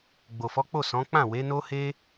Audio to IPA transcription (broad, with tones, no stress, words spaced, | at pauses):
ɡ͡bo˨fɔ˨˦k͡po˦˨ sɔ̃˨˦ k͡pã˦˨ we˨˦no˦he˦